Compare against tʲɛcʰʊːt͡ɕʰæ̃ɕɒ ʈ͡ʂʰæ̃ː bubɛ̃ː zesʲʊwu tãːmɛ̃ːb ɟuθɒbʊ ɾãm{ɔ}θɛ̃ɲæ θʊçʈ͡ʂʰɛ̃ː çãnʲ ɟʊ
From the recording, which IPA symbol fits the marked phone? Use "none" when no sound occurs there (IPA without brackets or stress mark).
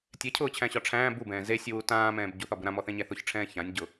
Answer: ɔ